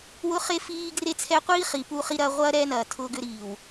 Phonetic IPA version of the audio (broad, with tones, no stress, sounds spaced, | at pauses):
w ʊ˦ χ e˦ f iː˦ ɡ r e˦ t͡sʰ ɛ˦ qʷ iː˦ χ i˨ p u˦ χ i˦ ɾ ɐː˦ ʁʷ ɐː˦ ɾ ɛː˦ n ɐː˨ tʰ ʊː˦ ɡ ʏ˦ ɾ iː˨ w